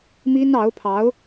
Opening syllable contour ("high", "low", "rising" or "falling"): high